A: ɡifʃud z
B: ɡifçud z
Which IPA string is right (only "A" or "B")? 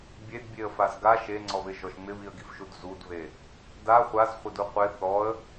A